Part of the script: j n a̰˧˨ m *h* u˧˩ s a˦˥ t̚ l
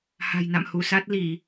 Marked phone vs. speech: correct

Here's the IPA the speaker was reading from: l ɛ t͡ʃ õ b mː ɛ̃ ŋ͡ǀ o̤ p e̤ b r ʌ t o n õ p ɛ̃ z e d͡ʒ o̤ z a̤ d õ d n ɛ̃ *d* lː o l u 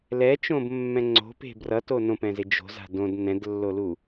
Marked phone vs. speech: correct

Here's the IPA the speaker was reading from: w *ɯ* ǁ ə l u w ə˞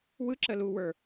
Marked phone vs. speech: correct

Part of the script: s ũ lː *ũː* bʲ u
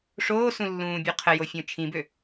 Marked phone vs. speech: correct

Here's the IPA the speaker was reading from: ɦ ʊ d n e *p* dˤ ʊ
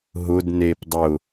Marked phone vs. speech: correct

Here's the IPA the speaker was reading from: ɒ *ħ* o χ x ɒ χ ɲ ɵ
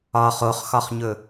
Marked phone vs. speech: incorrect: χ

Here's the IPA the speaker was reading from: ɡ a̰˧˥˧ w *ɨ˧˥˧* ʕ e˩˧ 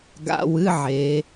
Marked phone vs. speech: correct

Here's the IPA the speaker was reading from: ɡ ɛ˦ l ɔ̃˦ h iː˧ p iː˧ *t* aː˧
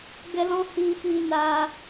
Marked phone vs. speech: incorrect: n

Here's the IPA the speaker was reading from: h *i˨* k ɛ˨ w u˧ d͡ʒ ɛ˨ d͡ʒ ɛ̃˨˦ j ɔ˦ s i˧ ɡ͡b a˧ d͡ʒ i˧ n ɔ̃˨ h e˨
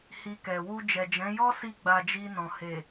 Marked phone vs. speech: incorrect: i˧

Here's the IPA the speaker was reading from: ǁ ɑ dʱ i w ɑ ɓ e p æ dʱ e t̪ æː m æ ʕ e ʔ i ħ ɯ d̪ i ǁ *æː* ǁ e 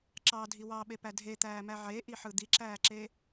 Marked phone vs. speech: correct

